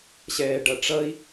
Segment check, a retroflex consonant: present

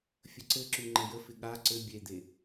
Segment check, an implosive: present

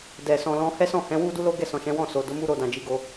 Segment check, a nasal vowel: present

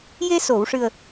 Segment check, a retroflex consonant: present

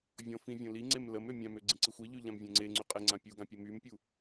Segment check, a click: present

